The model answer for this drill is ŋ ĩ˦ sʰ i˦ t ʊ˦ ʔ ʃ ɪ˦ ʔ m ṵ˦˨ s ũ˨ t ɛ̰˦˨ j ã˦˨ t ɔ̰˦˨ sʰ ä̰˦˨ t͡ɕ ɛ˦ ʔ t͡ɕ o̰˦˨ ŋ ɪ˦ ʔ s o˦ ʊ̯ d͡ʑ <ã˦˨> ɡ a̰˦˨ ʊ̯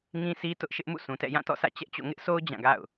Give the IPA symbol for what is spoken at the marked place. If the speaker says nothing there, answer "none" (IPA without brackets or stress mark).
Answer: ã˦˨